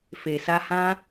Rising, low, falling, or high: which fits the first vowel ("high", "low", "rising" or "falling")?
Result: low